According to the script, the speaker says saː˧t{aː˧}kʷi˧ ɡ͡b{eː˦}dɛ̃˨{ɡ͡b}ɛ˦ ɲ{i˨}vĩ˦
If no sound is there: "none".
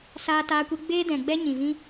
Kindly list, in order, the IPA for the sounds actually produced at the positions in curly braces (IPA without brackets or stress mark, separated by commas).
aː˧, eː˦, ɡ͡b, ĩ˨